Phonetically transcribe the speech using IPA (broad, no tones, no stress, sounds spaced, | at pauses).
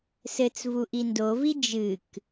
s ɘ t͡s v u ʔ i n d o v i d͡ʒ ɨ k